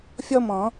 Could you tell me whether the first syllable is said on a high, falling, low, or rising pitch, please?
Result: high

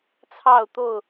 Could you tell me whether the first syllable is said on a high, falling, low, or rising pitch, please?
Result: falling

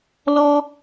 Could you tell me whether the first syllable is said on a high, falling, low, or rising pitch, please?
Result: high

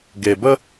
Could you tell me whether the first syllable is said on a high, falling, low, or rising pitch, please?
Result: low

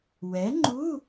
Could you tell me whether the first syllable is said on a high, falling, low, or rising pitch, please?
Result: rising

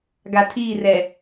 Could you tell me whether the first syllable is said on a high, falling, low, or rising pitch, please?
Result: low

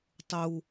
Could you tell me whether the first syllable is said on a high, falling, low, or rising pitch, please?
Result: high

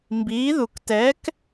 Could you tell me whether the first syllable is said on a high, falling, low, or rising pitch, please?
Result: rising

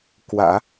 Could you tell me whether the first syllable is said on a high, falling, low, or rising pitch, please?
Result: low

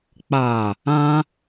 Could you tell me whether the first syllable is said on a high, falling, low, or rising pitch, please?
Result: low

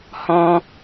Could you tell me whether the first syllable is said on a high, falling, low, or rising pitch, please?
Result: high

